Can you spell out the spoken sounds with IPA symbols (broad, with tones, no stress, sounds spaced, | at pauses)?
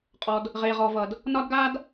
qʼ ɔ˩ d | ʁ e˩ ʁ ɔ˩ v ʌ˩ d | n ɒ˧ d ɡ a˧ d